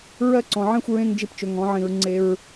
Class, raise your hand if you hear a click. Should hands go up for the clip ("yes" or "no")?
yes